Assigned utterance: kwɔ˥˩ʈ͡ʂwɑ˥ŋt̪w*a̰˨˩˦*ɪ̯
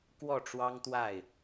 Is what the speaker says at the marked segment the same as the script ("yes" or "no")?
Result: no